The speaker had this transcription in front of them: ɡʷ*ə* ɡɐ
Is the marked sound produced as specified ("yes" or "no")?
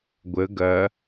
yes